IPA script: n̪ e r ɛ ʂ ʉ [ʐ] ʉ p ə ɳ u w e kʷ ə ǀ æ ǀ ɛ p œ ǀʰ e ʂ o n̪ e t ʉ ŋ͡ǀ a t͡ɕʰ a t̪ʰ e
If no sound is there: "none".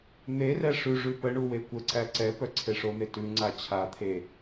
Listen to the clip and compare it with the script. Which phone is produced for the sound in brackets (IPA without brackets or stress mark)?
ʐ